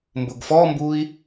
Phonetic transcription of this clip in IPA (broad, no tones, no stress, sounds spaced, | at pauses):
m b ʊ ɡ f ɔ m b u i̯